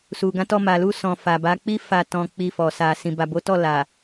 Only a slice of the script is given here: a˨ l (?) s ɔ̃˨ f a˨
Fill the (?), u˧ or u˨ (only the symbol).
u˧